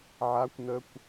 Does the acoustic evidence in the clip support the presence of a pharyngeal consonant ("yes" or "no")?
yes